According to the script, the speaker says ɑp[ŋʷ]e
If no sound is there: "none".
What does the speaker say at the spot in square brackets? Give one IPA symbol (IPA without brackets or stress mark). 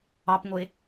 ŋʷ